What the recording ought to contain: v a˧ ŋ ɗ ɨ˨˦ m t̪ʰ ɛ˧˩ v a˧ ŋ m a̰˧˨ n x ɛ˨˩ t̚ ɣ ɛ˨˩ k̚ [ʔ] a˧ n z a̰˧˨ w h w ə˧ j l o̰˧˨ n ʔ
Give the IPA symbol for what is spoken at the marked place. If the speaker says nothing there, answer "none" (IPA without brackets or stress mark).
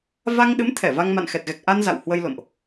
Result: ʔ